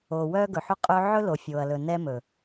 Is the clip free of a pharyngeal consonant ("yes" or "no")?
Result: no